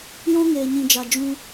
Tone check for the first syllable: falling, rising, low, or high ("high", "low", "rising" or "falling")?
high